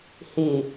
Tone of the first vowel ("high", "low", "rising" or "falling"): low